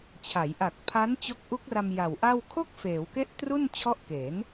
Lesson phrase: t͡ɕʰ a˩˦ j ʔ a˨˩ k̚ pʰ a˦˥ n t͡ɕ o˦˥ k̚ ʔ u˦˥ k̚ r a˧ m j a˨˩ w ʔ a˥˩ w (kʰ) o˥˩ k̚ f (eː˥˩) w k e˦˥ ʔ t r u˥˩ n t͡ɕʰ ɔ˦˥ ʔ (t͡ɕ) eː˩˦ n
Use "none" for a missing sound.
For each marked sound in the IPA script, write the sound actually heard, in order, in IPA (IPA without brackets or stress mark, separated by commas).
kʰ, eː˩˦, k